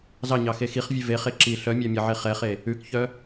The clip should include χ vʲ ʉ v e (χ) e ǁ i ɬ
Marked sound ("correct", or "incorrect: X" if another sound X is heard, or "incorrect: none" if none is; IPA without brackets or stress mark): correct